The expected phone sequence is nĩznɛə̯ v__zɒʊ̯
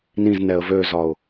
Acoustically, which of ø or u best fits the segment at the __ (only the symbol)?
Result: ø